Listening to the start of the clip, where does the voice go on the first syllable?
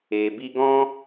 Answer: low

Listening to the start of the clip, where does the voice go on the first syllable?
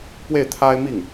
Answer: falling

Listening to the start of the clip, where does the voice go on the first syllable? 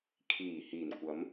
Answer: low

